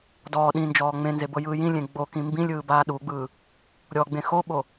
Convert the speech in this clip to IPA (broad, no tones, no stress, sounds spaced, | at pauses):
d ɔː ɗ ĩ n d͡ʒ ɔː ŋ͡m ẽ n z e b ɤ j ɯː j ĩ lʲ ẽ ɡ͡b o k ĩ m b ĩ lʲ ɯː b aː ɗ u ɡ͡b ɯː | ɾʲ ɔ ɡ͡b ẽ x o ɓ o